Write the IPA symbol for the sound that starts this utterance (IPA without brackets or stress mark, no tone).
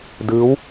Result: d